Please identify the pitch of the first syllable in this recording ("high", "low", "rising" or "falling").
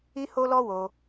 high